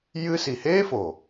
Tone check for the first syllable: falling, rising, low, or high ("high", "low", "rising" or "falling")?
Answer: high